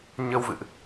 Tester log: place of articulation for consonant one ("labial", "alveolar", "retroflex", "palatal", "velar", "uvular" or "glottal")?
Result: palatal